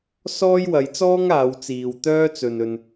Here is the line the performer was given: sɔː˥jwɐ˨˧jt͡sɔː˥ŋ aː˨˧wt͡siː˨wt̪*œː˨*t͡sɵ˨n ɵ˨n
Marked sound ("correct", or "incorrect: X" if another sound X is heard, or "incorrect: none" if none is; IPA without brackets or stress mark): incorrect: œː˥